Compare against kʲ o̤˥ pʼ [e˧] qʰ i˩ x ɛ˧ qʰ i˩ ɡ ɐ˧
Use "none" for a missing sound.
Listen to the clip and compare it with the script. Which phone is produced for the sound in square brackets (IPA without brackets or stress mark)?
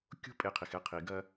e˧